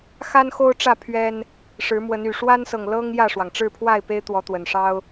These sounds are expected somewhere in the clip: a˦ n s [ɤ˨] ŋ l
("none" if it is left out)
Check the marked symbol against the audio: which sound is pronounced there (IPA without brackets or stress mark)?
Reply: ɤ˨